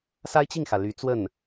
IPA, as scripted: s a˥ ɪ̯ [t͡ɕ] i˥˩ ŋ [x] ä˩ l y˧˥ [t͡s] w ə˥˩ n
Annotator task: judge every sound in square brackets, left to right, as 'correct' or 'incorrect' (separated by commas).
correct, correct, correct